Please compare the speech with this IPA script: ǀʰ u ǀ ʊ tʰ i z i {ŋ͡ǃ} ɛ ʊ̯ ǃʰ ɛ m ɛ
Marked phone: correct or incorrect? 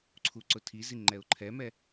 correct